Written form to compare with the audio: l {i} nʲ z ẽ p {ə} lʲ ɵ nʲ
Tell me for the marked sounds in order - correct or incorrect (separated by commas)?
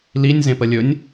correct, correct